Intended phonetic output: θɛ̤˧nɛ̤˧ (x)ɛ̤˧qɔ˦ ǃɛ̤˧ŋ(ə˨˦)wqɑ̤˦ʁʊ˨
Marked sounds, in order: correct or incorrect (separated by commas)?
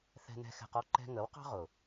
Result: correct, correct